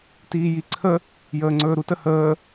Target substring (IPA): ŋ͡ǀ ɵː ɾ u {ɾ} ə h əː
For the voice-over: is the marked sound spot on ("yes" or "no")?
no